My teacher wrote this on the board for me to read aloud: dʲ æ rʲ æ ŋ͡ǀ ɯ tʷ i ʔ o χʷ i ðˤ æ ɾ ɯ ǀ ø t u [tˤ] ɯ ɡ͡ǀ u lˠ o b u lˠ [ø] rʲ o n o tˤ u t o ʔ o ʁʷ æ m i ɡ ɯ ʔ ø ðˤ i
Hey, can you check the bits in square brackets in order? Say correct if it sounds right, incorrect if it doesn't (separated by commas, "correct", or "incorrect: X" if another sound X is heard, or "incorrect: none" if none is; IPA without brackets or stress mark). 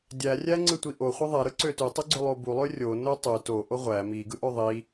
correct, correct